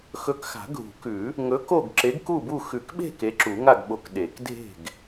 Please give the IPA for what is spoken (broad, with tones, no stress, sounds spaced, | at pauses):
x ɵ˨˥ k x a̤˨˩˦ ɡʱ ṳ˨˩˦ k ʉ˨˩˦ | ŋ ɵ˨˥ k o˥˨ ɡ ǁ e˨˥ ɡ k u˥˨ b u˥˨ x ʉ˨˩˦ k ɓ e̤˥˨ k e˨˥ ǁ u˨˩˦ ŋ a˥˨ ɡ ɓ o˨˥ k ɗ e˨˩˦ k dʱ e̤˥˨ ɡ